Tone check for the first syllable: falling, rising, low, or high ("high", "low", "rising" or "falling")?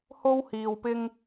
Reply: high